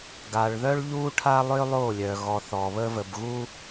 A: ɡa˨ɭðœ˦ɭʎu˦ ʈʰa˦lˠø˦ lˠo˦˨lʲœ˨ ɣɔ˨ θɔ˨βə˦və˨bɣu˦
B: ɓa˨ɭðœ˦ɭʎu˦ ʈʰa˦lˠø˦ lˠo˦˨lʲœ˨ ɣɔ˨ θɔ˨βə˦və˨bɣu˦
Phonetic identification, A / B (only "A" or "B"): A